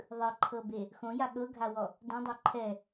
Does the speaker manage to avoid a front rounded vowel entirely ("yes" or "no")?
yes